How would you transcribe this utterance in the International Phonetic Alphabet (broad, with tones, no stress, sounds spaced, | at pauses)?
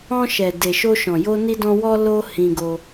ɔ̃˧ ʃ ɛ˨ d e˨ ʃ o˧ ʃ ɔ̃˨ j o˧ n i˧ d ɔ̃˧ w ɔ˧ l o˧ h ĩ˧ ɡ o˧